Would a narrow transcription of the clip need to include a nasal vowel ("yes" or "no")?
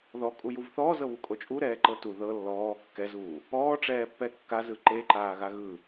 no